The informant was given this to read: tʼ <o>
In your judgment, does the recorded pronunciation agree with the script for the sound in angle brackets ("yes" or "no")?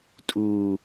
no